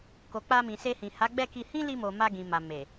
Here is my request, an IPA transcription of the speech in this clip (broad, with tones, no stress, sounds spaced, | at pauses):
k o˨ k͡p a˧ m ĩ˨ s e˧ h ĩ˨ h a˨˦ ɡ͡b ɛ˦˨ k i˧ h ĩ˦ l i˧ m o˨ m a˧ ɡ ĩ˨ m a˨ m e˨